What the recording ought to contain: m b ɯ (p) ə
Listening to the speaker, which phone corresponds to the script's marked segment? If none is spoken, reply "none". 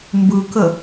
k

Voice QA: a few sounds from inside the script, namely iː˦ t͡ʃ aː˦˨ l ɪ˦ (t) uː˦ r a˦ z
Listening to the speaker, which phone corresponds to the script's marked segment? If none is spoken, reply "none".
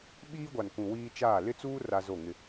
t͡s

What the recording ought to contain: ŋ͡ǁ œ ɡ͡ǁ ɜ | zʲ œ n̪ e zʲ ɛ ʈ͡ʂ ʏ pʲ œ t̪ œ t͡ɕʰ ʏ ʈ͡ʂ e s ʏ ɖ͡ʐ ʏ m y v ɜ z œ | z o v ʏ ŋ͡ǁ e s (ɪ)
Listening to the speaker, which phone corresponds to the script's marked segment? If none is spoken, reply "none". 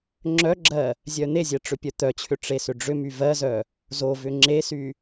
y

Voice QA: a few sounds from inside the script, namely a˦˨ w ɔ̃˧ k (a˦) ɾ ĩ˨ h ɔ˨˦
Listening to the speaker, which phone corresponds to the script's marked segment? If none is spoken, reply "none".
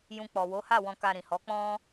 a˧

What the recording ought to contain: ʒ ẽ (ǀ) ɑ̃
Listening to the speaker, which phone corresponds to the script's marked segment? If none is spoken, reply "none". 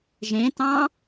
t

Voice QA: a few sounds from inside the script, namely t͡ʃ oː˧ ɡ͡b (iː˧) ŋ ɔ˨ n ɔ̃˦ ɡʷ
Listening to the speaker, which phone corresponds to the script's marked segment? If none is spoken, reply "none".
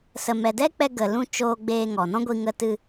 eː˧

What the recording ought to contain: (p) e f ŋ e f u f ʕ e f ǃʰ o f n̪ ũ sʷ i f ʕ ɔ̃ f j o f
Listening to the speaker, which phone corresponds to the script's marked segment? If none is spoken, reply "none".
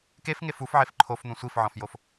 k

